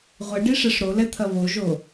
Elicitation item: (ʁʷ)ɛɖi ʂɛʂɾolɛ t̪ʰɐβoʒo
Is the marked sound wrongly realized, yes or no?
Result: no